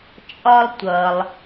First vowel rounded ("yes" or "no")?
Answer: yes